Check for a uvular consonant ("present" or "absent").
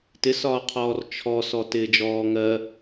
present